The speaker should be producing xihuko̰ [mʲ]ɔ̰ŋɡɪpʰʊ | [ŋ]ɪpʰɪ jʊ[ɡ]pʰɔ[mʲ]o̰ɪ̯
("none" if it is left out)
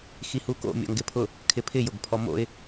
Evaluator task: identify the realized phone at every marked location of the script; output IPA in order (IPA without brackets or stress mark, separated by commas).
mʲ, kʰ, ɡ, m